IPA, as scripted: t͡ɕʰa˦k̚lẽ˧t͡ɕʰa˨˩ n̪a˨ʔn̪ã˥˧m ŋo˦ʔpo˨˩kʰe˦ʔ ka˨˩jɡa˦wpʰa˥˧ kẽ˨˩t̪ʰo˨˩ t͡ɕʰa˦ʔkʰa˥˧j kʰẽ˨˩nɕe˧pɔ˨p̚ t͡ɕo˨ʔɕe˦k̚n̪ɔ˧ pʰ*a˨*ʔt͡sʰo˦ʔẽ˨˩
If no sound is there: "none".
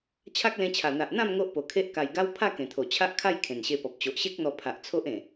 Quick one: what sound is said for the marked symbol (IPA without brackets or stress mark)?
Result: a˨